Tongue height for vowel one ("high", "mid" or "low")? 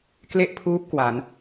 mid